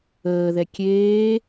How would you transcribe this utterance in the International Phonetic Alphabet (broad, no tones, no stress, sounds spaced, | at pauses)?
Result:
əː ð ɛ kʲ eː